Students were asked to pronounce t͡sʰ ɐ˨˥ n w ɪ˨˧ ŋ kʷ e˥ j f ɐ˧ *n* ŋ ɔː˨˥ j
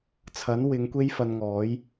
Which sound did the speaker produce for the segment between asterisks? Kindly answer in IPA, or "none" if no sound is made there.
n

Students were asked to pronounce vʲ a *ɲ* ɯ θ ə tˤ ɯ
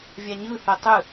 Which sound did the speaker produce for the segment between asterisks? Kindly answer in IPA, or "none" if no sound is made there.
ɲ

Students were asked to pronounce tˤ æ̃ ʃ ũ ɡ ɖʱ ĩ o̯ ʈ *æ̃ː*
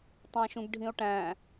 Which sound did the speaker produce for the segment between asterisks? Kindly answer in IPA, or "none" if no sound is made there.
æ̃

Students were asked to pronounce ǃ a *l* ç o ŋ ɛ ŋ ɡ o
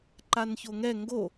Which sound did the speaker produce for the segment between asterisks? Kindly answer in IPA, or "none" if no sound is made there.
n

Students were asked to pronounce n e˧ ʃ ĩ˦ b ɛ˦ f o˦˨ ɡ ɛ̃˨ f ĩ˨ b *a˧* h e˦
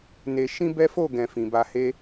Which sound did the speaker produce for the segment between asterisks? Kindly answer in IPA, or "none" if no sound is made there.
a˧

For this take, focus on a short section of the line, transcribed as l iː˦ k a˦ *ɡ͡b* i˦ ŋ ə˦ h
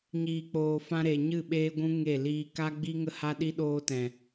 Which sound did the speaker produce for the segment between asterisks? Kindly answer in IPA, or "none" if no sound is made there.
ɡ͡b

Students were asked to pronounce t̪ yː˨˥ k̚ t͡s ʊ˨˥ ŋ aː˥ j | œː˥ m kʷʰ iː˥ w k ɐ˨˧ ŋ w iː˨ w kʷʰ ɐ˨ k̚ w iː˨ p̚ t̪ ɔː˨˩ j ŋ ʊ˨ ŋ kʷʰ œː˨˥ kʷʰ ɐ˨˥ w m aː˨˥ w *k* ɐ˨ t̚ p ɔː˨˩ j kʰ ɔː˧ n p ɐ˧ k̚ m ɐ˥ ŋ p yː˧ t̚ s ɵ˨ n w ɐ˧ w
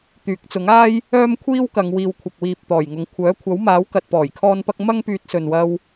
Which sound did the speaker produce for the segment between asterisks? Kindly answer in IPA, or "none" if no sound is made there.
k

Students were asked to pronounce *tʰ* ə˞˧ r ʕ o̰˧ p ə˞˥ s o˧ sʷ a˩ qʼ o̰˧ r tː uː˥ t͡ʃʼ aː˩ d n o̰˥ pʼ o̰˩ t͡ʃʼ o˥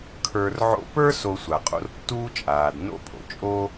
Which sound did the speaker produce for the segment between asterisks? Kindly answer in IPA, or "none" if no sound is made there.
kʰ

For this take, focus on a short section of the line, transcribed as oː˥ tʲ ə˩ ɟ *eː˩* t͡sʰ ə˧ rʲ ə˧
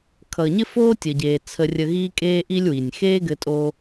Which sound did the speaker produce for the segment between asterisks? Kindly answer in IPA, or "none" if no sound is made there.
eː˩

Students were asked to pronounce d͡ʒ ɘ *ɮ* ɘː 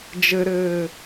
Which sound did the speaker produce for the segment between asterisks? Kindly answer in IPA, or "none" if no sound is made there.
ɾ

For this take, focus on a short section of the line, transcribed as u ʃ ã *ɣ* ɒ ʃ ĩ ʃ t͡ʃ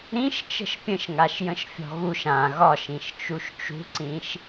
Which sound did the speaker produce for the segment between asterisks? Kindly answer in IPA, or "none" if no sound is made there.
ɣ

